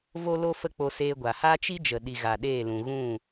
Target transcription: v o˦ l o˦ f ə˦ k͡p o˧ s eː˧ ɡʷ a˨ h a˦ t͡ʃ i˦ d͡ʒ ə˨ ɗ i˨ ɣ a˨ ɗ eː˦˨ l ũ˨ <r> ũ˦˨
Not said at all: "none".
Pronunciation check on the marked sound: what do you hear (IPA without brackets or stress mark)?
ɣ